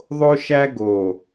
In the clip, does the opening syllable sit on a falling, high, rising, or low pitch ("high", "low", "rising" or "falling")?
high